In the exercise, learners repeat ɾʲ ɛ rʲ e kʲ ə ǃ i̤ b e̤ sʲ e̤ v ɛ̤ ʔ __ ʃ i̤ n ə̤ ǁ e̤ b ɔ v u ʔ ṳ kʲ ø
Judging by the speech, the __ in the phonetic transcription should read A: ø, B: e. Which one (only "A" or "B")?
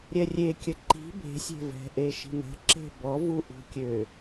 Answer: B